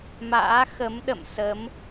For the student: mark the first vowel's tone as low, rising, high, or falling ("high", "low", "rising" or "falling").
rising